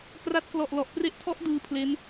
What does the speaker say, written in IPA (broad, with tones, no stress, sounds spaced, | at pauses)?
k r a˦˥ t̚ k l ɔ˨˩ ʔ l ɔ˨˩ ʔ p r e˦˥ ʔ tʰ ɔ˦˥ ʔ d ɯː˦˥ pʰ l e˦˥ n